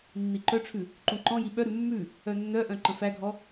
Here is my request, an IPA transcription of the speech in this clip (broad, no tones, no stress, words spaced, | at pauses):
nːiǃœʈ͡ʂʰʉ | ǃũǃɔ̃ji ɓœɾʉ mːʉ | œnːœʔœ̃ ǃə̃fæɡʱɔ